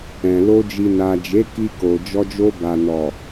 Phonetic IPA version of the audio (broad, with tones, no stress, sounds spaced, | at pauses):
ɛ̃˨ l o˧ d͡ʒ i˨ n a˨ d͡ʒ e˨˦ k i˧ k o˨ d͡ʒ ɔ˧ d͡ʒ o˧ b a˨ n ɔ˨